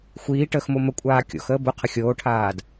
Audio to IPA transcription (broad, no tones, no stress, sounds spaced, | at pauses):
xʷ iː ʈ əː x m o m ə kʷʼ aː kʲ o̰ x əː b ʊ qʰ ə xʲ oː ʈʰ aː d